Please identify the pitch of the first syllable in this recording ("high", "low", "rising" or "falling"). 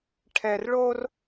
low